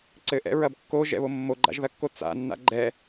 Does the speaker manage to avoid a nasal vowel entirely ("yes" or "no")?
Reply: yes